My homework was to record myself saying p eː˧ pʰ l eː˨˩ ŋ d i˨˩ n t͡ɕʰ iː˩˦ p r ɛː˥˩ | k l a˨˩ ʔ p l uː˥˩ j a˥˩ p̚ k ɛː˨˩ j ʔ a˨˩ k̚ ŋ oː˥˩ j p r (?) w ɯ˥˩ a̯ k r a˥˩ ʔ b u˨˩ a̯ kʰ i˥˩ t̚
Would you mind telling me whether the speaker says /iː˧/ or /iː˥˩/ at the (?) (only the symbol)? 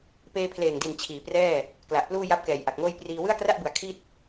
iː˧